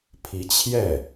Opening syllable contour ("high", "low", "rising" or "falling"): rising